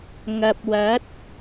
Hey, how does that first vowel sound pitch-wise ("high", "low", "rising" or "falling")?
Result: low